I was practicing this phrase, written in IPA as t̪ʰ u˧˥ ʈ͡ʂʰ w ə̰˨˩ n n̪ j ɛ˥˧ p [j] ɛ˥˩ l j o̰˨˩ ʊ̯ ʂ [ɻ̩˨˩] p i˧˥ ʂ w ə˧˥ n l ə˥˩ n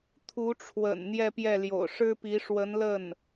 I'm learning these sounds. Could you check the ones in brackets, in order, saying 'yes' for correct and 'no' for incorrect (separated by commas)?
yes, no